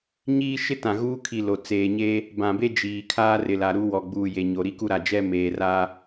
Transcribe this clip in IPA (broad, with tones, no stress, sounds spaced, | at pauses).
ɲ iː˦ ʃ ɪ˦ t ã˨ ɣ uː˦ kʰ i˨ l o˨ t͡s eː˨ ɲ eː˦ | b ã˨ b e˦ d͡ʒ iː˨ kʰ aː˦ r ɪ˨ l a˨ ɾ u˦ w ɔ˨ ɡ͡b uː˨ j e˨ ɲ o˨ ɾ i˦ k u˦ ɾ a˨ d͡ʒ ɛ˦ m eː˨ r aː˦